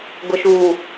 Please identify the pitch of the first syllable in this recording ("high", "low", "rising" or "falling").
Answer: low